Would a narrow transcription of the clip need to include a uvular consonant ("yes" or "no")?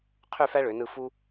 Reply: yes